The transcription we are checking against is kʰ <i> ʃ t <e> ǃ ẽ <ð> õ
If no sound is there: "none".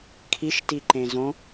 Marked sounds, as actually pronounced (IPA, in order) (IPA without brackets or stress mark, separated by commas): i, i, z